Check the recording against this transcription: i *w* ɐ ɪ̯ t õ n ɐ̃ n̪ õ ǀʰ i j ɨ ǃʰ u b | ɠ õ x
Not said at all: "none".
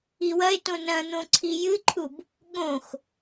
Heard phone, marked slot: w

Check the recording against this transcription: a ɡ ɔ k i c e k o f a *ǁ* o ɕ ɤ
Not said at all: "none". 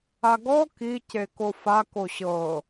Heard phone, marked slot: k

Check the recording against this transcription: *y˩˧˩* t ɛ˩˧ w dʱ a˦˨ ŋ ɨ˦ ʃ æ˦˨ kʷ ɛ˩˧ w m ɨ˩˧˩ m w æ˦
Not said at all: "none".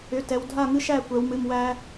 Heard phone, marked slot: ʏ˩˧˩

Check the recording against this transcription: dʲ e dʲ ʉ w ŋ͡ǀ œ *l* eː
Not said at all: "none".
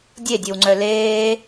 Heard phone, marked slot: l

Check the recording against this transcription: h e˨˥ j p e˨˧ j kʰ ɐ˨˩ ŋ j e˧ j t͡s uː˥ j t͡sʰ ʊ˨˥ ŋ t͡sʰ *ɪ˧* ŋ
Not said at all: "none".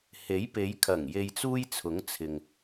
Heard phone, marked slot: ɪ˨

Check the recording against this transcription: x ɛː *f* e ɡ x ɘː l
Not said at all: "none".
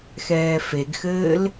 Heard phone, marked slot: f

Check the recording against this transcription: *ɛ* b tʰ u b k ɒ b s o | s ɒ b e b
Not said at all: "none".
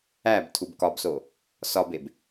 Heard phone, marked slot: æ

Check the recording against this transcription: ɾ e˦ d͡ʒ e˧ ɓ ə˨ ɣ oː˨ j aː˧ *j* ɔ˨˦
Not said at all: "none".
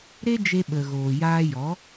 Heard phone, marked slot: j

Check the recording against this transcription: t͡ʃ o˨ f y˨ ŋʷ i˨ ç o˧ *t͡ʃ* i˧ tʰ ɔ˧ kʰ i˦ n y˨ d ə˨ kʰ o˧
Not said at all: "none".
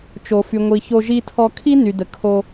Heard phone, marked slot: ʒ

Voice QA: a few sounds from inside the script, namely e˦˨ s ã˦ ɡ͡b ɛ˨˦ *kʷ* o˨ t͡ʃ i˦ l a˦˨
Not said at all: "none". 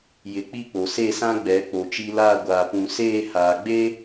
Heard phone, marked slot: k͡p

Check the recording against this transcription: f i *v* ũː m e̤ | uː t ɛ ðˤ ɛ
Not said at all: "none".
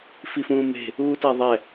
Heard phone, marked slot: f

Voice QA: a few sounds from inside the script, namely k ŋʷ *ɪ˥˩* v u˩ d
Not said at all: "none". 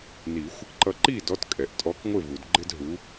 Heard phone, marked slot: ɪ˥˩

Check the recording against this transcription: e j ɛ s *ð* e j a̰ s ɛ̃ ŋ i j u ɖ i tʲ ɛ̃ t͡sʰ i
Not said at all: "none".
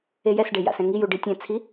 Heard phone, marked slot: ɖ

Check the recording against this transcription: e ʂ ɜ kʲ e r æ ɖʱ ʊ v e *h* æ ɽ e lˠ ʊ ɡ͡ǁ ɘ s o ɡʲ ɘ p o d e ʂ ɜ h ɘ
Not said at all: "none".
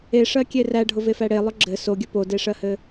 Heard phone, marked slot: f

